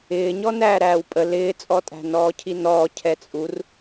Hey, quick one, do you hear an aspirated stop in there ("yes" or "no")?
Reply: yes